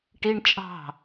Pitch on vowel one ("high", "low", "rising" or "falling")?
high